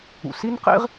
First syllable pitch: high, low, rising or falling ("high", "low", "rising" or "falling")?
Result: low